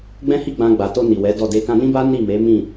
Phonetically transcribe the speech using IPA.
ɡ͡b ɛ̃˦ h i˦˨ ɡ͡b ã˧ ɡ͡b a˨ t o˧ n i˨ w ɛ˨˦ d ɔ˦˨ d e˧ k ã˧ n ĩ˦ b a˦ n i˦˨ m e˨˦ m ĩ˦˨

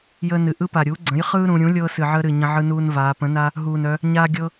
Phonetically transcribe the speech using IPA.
j əː˦ n ɨ˩˧ ʔ ɯ˦ p a˨˩ ɾʲ uː˩˥ ɡ͡ǀ ə̃˩˥ j χ ɯː˦ ɾ ũ˩˧ ɾʲ ũ˩˥ lʲ ɤː˦ s ɨ˨˩ ʕ əː˦ ɾ ɨ˨˩ ɲ ə̃˦ ʕ ɯ˦ n uː˦ n v aː˩˧ p ə̃˩˥ n a˦ | ɦ uː˨˩ n œ˩˧ | ɲ aː˦ ɡʲ ɤ˦

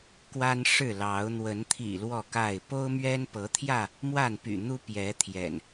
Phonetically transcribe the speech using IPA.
k w a˦ n ʂ ɻ̩˥˨ l ɑ˨˦ ʊ̯ n̪ w ə˨˦ n t̪ʰ ḭ˨˩ l w ɔ˥˨ k a˥˨ ɪ̯ p o˦ ʊ̯ m ɥ ɛ˦ n p ɤ˨˦ t̪ʰ j ä˥˨ | m w a˥˨ n p y̰˨˩ n̪ u˦ p j ɛ˨˦ t̪ʰ j ɛ̰˨˩ n

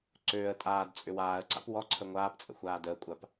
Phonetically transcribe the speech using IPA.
ǀ øː ə̯ tʼ aː d t͡sʼ ʏ w aː ə̯ ǀ a̰ p w ɔ ǀʰ ə ŋʷ aː p t͡sʼ ə̰ xʷ aː d əː kʷʼ a p

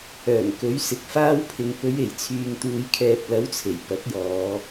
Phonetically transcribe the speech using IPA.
œː˨˩ ŋ k ɵ˨˥ ɥ s ɪ˨ k̚ f aː˧ w pʰ ɪ˨ ŋ p ɵ˨˧ ɥ e˨˩ j t͡sʰ yː˨ ŋ t̪ uː˨˧ j kʰ ɛː˨ p̚ l ɐ˨˥ w t͡sʰ e˨˩ j p ɐ˨˥ t̚ j ɔː˨˧

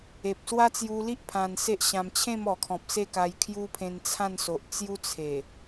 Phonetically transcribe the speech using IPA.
e˨ p̚ s w a˦ t͡s j u˧ l i˦ ʔ pʰ ã˧ n s e˦ ʔ ɕ ã˧ m t͡ɕʰ ẽ˥˧ m ɔ˨˩ kʰ ɔ̃˨ p̚ s e˥˧ k a˧ j kʰ j u˦ pʰ ẽ˧ n t͡sʰ ã˥˧ n s o˨ ʔ t͡s j u˦ t͡sʰ e˨˩

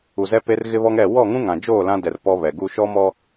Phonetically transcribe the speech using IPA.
u˨ z ɛ˦ p e˦ r ɣ ɪ˦ β ɔ˦ ŋ ɛ˦˨ w ɔ˦˨ ŋ ũ˦ ŋ ã˨ d͡ʒ oː˦˨ l ã˦ d ɛ˨ r p ɔ˦ β ɛ˨ ɡ u˦ ʃ ɔ˦ m ɔ˦

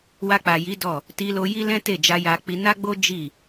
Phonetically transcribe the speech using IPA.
w a˧ k͡p a˨ j i˨˦ d ɔ˦˨ | t i˧ l o˧ j i˦ l ɛ̃˦ t e˦˨ d͡ʒ a˧ j a˧ k͡p i˧ n a˦ ɡ͡b o˦ d͡ʒ i˦˨

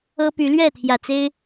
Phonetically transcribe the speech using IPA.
ɤ˦ p y˨˦ l ɥ ɛ˥˨ t̪ʰ j ä˨˩ t͡s e˦ ɪ̯

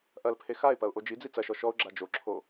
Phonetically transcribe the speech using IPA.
ʔ ɐ l pʰ e x a ɪ̯ p ɐ ʊ̯ ʔ o d͡ʒ i d͡z i t͡s ɐ ʃ ɔ ʃ ɔ ʊ̯ ɡ͡ǁ a d͡ʒ o ǁʰ o

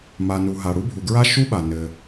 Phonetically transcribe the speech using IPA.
m a˩ n u˩ ɦ a˩ ɽ u˥ bʱ u˩ ɡ ɹ a˥ ʃ u˥ ɓ a˩ n ɘ˩

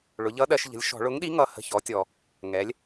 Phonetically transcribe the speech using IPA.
ɭ ʊ˩˧ ʎ ʌ˨˥ ɗ ɜ˩˧ ʃ ʎ ə̤˩˧ lʲ ʃ ɔ̤˧˩˧ ɭ ʊ˨˥ ŋ ɗ i˨˥ ŋ ʌ˩˧ h ə̤˩˧˩ ç ɔ˩˧ tʲ ɔ˩ | ŋ ɛ˩˧ lʲ

